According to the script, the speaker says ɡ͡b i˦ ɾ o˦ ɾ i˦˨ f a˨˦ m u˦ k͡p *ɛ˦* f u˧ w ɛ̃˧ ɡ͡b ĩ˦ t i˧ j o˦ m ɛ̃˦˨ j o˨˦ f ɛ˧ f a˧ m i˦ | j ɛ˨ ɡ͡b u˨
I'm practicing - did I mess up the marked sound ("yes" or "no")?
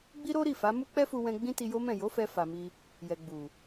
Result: no